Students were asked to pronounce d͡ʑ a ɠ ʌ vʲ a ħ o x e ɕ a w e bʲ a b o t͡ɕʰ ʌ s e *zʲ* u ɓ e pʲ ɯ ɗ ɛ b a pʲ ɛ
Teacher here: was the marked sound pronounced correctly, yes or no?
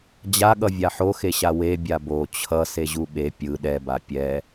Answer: no